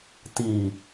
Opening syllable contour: low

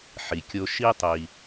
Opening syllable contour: low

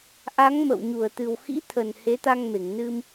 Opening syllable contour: rising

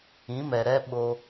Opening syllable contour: rising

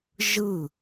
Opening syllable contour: falling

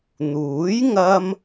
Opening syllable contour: rising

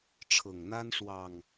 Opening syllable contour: low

